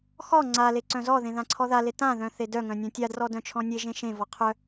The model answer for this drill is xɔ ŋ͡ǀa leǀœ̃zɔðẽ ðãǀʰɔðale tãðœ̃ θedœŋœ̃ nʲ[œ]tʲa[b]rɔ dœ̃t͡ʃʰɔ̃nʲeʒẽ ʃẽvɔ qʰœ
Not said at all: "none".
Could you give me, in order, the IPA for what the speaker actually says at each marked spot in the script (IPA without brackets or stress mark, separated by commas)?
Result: œ̃, d